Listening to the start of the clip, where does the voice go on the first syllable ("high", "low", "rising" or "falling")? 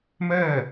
falling